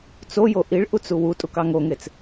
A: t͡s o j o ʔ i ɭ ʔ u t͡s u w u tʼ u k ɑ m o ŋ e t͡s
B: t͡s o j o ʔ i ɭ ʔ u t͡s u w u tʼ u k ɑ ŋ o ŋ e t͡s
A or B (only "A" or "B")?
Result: B